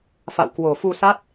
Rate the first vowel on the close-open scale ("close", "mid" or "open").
open